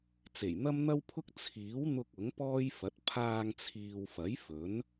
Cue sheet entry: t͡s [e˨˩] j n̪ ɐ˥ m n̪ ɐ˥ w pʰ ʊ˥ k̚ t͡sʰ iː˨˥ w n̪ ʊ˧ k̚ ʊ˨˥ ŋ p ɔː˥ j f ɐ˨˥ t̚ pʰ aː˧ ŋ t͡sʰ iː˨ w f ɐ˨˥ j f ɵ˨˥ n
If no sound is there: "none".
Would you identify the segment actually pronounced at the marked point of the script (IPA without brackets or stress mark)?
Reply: e˨˩